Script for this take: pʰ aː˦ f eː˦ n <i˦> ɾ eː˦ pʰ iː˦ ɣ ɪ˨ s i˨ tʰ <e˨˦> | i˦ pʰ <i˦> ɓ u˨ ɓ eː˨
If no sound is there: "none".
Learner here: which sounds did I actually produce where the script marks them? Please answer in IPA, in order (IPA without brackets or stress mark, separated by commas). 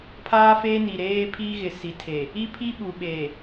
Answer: i˨, e˨, i˦